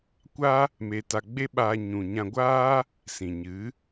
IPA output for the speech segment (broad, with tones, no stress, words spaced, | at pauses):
kʷa˦ | me˧ta˧ ɡ͡be˦ɓaː˧ɲũ˨ɲã˧ ɡʷaː˦ | sĩ˨ɲɨ˨˦